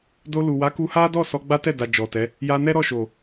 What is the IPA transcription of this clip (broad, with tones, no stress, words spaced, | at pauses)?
do˧lu˨ wa˨˦ku˧ha˦dɔ˦˨ sɔ˧ɡ͡ba˦tɛ˦˨da˨ d͡ʒɔ˨tɛ˨˦ | ja˧nɛ˦ɾɔ˦˨ ʃo˨